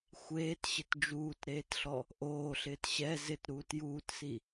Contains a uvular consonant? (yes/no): no